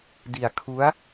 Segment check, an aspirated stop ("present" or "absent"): present